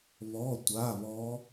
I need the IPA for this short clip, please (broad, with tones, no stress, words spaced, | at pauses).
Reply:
βɔ˧˥˧tʷa˧˥˧βɔ˦˥